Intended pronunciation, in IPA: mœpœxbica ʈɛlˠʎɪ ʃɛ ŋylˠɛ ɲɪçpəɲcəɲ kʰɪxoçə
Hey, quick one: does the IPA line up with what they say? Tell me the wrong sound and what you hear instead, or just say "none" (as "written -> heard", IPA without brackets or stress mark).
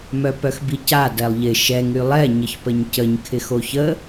ʈ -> d